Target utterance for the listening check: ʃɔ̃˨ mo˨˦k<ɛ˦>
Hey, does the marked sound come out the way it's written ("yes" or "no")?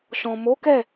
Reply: no